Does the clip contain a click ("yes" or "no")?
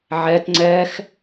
yes